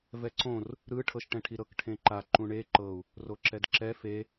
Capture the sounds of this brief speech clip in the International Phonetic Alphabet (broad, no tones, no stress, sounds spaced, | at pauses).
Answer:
v ɛ ǀ õ r | ɾ ɯ ʈʰ ɤ ʃ ʈ ɛ̃ ʈʰ i ɾ ɤ k ʈʰ ẽ ǃ a ǃ ũ ɳ e ǃ ɤ u̯ | r o ǁ ɛ d ǁ ɛ f e